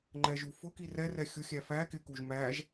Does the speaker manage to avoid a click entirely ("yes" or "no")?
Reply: no